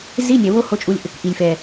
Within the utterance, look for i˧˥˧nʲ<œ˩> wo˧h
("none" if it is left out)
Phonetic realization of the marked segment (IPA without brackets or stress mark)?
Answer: ɛ˩